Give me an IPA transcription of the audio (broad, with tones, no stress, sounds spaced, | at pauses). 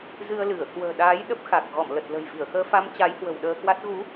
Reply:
z ɨ˧ ə̯ l ɨ˧˩ ə̯ k w ə̤ː˨˩ ɗ aː˨˦ j ɗ ə˦˥ p̚ x a˨˩ k̚ ɣ ɔ˧˩ m l ə˨˩ t̚ l ə̤˨˩ j v i˧˩ ə̯ x əː˧ f a˧ m t͡ɕ a˨˦ j h w ə̤˨˩ w ɗ əː˧ k w a˦˥ t̚ ɣ u˨˦